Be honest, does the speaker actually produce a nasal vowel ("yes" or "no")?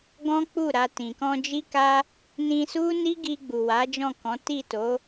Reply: yes